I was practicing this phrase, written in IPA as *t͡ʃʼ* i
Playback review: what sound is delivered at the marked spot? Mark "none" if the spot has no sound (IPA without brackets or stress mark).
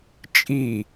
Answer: t͡ʃʼ